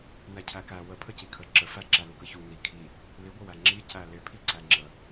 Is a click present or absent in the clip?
present